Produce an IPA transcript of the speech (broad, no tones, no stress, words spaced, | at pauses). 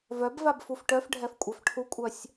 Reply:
vœbvab fufʈœfɖʱɛf kʷʼœfʈʰukʷʼœsʲ